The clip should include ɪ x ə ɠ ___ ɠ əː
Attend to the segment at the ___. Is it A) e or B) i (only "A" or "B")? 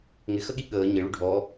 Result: B